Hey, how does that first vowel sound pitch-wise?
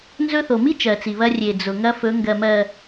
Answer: high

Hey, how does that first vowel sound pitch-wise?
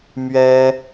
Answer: high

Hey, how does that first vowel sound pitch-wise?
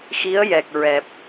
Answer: rising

